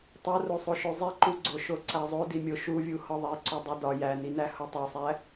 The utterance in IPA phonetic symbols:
tˤ o r o sˤ o ʃ o zˤ i ǃ u ɡ͡ǀ o ʃ o ǀ æ zˤ o d i mʲ o ʃ u vʲ u h ɒ ðˤ e ǀ u dˤ u d ɒ j æ n i n æ h o tˤ o sˤ æ

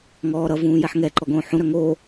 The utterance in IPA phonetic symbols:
ŋ ɔː ɾ ʌ v ũː j ɛ ħ ŋ ɛ ǃ ɔ ɡ õː ħ ũ ɾ œ ŋ o

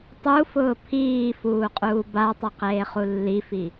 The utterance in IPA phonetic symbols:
tˤ u f ʊː pʰ iː f uː qʼ uː b a tˤ ʊ q eː χ u lː i f i

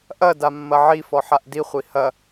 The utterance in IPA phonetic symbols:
ʔ ɐ d a mː ɐ ʕ i f ɔ ħ a ʔ d i χʷ i h ɐ

